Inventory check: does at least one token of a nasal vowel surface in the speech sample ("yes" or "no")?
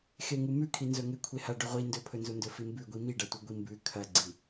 no